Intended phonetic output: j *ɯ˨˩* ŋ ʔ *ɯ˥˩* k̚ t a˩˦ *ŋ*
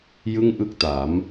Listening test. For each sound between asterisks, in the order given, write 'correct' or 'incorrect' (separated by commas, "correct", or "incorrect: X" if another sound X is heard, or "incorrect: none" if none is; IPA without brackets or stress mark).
incorrect: ɯ˥˩, correct, incorrect: m